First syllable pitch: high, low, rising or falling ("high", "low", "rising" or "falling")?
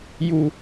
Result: low